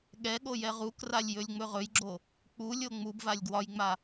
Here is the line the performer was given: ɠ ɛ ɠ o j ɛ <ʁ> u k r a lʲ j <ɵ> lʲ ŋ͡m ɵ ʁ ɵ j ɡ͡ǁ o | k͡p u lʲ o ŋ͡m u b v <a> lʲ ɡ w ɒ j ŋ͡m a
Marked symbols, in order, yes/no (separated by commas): yes, yes, yes